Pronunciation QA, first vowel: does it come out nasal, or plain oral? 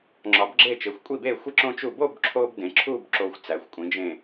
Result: oral